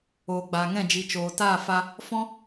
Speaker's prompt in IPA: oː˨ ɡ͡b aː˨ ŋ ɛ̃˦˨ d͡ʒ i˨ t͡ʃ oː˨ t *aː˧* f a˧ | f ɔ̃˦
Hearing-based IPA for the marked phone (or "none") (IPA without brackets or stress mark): aː˦˨